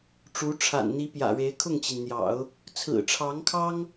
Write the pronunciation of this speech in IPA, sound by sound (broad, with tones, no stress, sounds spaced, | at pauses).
ʈ͡ʂ u˧˥ ʈ͡ʂʰ a̰˨˩ n n̪ i˧˥ p j ä̰˨˩ ɻ e˧˥ ɪ̯ kʰ ʊ˥˩ ŋ t͡ɕ i˩ n n̪ j ɑ̰˨˩˦ ʊ̯ | t͡sʰ ɹ̩˨˩ ʈ͡ʂʰ ɑ˧˥ ŋ kʰ ɑ˥ ŋ